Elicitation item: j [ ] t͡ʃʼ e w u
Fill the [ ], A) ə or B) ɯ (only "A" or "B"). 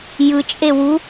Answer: B